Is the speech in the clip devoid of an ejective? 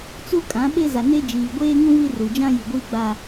no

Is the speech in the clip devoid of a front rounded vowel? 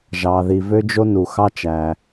no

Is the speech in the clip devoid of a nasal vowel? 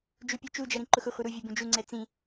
no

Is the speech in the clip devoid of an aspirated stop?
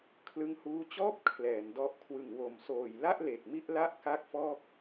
no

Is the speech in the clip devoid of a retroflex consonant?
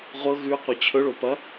no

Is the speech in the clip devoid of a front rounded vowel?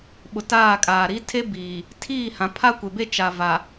yes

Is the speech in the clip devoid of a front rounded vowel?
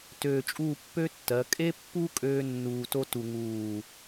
no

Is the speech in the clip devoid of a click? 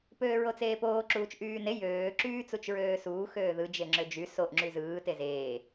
no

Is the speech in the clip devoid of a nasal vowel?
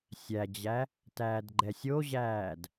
yes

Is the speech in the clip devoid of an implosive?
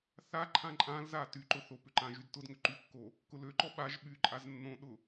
no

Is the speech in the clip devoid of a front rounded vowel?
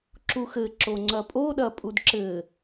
yes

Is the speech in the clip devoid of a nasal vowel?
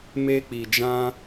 no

